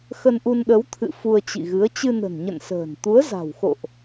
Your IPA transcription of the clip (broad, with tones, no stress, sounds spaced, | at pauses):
x ə˧ n ʔ u˧ n ɗ ə˨˦ w t̪ʰ ɨ̰˧˨ f u˧ ə̯ t͡ɕ ḭ˧˨ ɣ ɨ˨˦ ə̯ t͡ɕ ɨ˧ n ə̤˨˩ n ɲ ə̰˧˨ n s ə̤ː˨˩ n t̪ u˨˦ ə̯ z a̤˨˩ w x o̰˧˨ ʔ